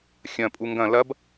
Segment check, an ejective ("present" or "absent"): present